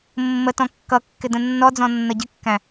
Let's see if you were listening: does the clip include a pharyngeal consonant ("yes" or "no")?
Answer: no